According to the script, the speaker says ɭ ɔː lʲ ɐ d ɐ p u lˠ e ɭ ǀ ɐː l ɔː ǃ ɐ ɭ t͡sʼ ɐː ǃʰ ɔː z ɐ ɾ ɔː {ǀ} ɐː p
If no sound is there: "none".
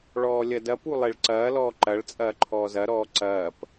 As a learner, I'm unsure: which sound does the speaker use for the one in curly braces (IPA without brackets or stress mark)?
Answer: ǀ